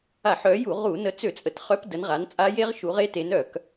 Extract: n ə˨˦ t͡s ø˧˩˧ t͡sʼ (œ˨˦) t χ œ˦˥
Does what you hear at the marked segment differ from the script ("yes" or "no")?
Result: yes